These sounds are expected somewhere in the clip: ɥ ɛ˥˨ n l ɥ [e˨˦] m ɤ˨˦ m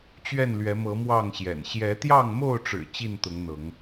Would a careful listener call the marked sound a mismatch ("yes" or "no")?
yes